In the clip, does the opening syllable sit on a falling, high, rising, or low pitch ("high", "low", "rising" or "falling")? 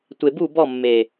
low